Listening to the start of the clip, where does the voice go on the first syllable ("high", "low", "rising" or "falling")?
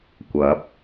rising